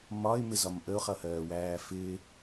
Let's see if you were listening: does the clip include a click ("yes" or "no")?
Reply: no